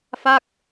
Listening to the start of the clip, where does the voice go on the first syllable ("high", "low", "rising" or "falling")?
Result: falling